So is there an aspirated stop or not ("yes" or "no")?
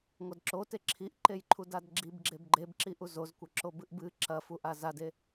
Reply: yes